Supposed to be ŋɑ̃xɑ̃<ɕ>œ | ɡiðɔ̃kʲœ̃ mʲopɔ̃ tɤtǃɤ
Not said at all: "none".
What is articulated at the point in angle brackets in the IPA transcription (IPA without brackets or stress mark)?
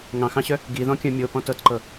ɕ